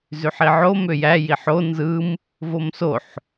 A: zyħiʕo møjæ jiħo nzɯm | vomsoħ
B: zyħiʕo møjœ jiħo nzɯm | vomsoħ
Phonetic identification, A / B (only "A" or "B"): A